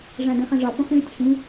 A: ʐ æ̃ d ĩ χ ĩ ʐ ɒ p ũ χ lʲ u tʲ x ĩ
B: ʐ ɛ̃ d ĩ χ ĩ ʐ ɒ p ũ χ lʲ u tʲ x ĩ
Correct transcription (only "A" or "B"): A